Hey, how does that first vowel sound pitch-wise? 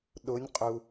rising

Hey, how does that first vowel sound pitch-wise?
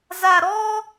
low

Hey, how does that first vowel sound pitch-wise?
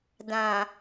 low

